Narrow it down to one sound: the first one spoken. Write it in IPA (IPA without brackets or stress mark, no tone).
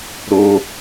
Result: ɾ